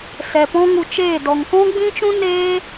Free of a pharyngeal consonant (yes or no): yes